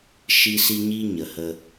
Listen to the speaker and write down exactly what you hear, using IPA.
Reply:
ʃ i˦ s i˦ ɲ i˦ ɲ ə˨ h ə˦

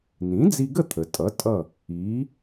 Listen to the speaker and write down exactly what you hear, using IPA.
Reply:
n ĩ˩˥ d͡z i˧ ɡ ə˥˩ t̪ʰ ə˩ tʼ ʌ˩˥ tʼ ʌ˥˩ | iː˩˥

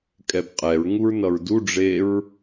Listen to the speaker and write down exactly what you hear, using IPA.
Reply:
kʼ ɛ b qʼ ɛ ɹ ŋ u ɹ n ʌ ɹ d u ɖ͡ʐ e ɹ

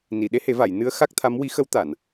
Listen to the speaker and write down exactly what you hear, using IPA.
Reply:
n i˨˩˨ ɗ e˧˥ h e˨˩˦ v a˨˩˨ j n ɨ˧˥ ə̯ x a˦˥ k̚ t̪ʰ a˧˥ m w i˧˥ x ə˧˥ w t̪ a˨˩˨ n

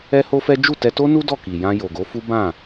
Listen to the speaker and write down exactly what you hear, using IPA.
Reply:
ɛ˦ h o˦ f ɛ˦ d͡ʒ u˦˨ t ɛ˧ t o˦ n u˦ d ɔ˦˨ k i˨ j ã˧ j o˨ ɡ o˨˦ f u˦ b ã˦˨

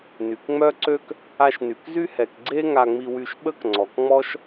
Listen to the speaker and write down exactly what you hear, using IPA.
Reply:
n y˩ k ŋ͡m œ˥ ǀ ø˥ k | a˧ ʃ n y˩ k z y˥ h ɛ˩ k ɡ͡ǀ e˥ ŋ a˧ ŋ͡m i˧ w y˧ ʃ ɓ ə˥ k ŋ͡ǀ ɔ˩ k ŋ͡m ɔ˥ ʃ

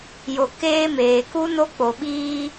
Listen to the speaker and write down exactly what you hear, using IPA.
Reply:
j o˨ k eː˦ m eː˨ k u˦ n o˦ k͡p o˨ ɓ iː˦

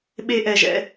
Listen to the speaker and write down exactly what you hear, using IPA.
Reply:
ɓ e˥ ʔ ɛ˦ ʒ ɛ̰˥

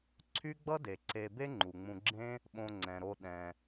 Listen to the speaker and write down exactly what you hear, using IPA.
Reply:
ǀʰ y˦ ɡ͡b ʌ˦ d e˩ ǀ e˨ b e˦ ŋ͡ǃ u˩ ŋ͡m ũ˨ ɡ͡ǁ ẽ˦ | ɓ õ˨ ŋ͡ǀ ɛ̃˩ ɾ o˨ ɗ ɛ̃˩

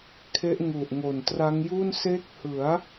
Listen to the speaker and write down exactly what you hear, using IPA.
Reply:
kʰ e˦˥ ʔ ŋ u˨˩ ʔ ŋ o˨˩ n t r a˦˥ ŋ j u˥˩ n s e˦˥ k̚ h ɯ˩˦ a̯

